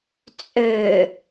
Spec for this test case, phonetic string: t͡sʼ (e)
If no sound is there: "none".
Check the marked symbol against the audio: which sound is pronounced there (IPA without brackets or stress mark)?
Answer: ø